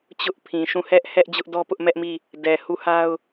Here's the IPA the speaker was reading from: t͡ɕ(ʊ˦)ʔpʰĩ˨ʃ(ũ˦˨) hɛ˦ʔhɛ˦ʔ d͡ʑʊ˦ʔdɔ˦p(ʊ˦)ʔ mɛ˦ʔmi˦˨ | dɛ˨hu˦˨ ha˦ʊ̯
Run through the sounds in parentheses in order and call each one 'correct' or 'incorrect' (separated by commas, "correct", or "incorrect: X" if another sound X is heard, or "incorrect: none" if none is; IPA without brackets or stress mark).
correct, correct, correct